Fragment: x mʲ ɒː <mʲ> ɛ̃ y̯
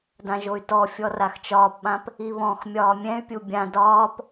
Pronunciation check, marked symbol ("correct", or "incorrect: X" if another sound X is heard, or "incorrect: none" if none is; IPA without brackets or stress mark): correct